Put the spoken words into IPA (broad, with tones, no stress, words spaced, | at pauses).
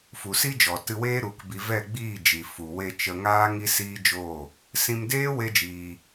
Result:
fu˨si˦d͡ʒɔ˨ tɨ˧weː˦ ɾu˨˦kbi˧ vɛ˦˨ɡ͡biː˦˨d͡ʒi˨fu˨ we˧ t͡ʃə˧ŋaː˦ ŋi˦siː˦d͡ʒoː˦˨ | sĩ˧mdeː˦ we˦d͡ʒiː˧